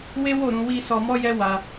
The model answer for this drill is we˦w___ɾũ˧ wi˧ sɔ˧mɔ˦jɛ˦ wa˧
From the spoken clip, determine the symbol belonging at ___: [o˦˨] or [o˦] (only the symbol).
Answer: o˦˨